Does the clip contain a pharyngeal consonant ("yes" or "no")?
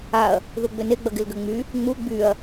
no